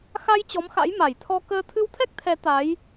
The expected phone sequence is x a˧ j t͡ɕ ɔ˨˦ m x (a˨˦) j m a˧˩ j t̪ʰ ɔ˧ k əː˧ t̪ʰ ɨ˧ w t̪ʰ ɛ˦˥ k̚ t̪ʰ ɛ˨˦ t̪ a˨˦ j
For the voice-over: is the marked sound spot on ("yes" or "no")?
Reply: no